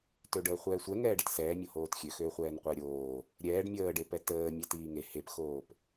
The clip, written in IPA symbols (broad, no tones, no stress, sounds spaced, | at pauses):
t ø ɖ əː χʷ ɛː sʷ ɛ ŋ ɛː ɖ ə t s ɛː mʲ o h oː t xʲ ø x øː χʷ ɛː n qʷ əː ɾʲ oː | ɾʲ ɛː ɖ mʲ əː ɖ e p ɛ t əː mʲ ɛ t iː ŋ e h e p x oː p